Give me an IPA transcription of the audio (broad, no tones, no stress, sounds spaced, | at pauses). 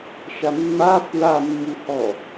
ʃ a mː a f ɹ a mː u h ɔ